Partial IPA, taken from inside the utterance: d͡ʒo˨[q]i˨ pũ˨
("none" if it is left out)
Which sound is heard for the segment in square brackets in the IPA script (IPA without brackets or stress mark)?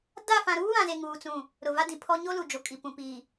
kʼ